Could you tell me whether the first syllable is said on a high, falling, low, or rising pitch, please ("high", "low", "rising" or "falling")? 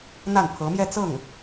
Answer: falling